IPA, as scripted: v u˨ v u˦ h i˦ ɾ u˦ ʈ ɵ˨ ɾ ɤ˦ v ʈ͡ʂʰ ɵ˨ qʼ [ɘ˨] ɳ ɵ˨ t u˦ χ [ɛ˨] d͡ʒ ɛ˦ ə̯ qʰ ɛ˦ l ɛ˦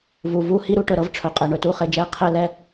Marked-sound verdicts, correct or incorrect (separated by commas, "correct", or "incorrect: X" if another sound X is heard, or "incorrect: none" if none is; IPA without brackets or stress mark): incorrect: ɛ˨, incorrect: e˨